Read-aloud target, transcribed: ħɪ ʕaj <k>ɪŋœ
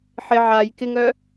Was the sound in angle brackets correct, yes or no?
yes